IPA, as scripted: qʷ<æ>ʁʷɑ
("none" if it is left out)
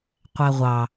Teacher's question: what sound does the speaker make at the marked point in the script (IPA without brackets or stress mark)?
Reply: æ